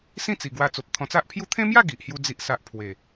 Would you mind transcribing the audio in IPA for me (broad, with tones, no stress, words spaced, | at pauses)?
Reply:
sĩ˥˧t͡si˨˩ ɡwa˧ t͡so˨p̚t̪ʰɔ̃˧t͡sa˦ʔpʰju˥˧ t̪ʰẽ˦mja˥˧ ɡi˨ʔhju˦ d͡zi˦ʔsa˦ʔ pʰwe˨˩